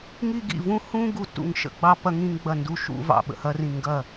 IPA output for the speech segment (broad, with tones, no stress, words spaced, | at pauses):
ŋi˧ɡḭ˧˩vũ˧ hũ˧ ɡu˧˩tṵ˧˩ŋʃə̰˧ɡ͡bɑ˧ pɐ˧ŋĩ˧ŋ ɡ͡bɐ˧˩ndu˧˩ ʃṵ˧ vɑ̰˧˩ɓə̰˧˩hɐ˧rĩ˧˩ ŋɡɐ˧˩